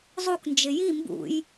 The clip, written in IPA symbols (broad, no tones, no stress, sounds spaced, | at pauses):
zˤ u k n d͡ʒ ɪ j i m b ṵ j